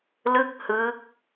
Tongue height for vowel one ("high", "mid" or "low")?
high